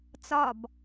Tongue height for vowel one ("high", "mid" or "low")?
low